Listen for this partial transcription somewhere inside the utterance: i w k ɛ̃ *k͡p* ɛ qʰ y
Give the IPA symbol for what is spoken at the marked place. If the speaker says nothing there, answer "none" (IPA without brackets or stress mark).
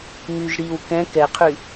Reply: k